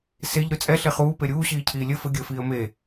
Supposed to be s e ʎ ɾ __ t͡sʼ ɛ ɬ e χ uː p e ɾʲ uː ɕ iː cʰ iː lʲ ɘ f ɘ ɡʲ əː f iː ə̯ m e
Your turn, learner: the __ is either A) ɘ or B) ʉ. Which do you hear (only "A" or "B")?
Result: B